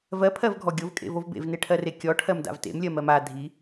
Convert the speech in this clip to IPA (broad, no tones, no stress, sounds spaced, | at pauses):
v ɜ pʰ ɜ v ɡʱ ɔ ɡʲ o v kʼ ḛ v o v b ḛ v n e ʈʰ ɜ r e kʲ ɔ ʈʰ ɜ m d a̰ v t ḛ m lʲ ɜ m ɜ m a dʱ i